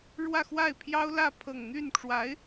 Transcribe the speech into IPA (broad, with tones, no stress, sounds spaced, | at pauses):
ɻ w ä˥˧ x w a˥˩ ɪ̯ pʰ j ɑ˥ ʊ̯ l ä˥˧ pʰ ɤ˥˧ ŋ n̪ y˥˩ n ʈ͡ʂ w a˧˥ ɪ̯